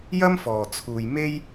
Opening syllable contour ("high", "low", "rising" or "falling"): high